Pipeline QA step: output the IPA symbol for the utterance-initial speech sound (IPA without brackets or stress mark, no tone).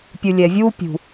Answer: pʲ